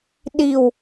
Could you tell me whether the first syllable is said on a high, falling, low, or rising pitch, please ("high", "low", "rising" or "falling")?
low